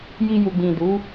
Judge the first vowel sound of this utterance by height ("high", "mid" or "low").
high